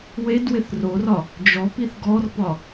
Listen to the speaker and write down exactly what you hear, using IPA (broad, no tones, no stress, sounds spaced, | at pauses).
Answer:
w e d w ɪ θ r o r ɒ | d͡ʒ ɔ p i θ ɡ ɔ r p ɒ